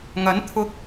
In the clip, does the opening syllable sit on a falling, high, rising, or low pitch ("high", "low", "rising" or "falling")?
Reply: rising